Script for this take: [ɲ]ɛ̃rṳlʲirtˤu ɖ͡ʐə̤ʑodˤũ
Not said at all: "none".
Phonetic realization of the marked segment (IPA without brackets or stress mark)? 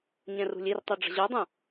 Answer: ɲ